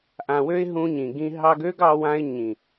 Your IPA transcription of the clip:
ʔã˨wø˧ɪ̯ ɦũ˧ɲĩ˨ɡĩ˧ ɦɑ˧ɡø˦ɡɑ˧wã˧ɪ̯ ɲĩ˨

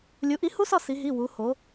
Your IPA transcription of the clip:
lʲu˩˥ʔi˩˥ hu˦˥sɒ˦˨ si˩˧ɦi˩˧˩ wu˩˧ho˩˧

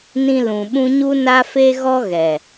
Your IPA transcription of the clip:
nĩ˧ lũ˨ɓũ˦ ɲu˦na˦fe˦ɣɔ˦ ɣɛ˨

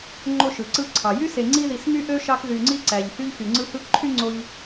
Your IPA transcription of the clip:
ŋ͡ǃo˦ʃɯ˩ǀɯ˦ ǀʰɑ˩jy˥se˨ ŋ͡ǀi˦ði˨s my˥ʔø˥ʃɑ˦k ðy˨ŋ͡ǀi˥ǀæ˩ʎ hy˦ʎ xy˩ŋ͡ǀɯ˦hɯ˦kǃʰy˥ ŋ͡ǀo˦ʎ

